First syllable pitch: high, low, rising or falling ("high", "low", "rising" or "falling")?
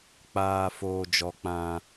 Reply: low